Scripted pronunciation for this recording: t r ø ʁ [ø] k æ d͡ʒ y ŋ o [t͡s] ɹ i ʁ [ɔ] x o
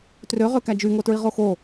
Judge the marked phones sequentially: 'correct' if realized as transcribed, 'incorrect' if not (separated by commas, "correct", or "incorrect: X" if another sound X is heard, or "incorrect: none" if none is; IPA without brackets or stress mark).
correct, incorrect: t, incorrect: o